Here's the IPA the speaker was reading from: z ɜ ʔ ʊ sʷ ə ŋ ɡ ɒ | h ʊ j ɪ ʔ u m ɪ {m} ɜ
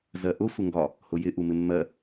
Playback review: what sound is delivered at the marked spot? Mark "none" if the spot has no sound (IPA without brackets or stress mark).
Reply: mː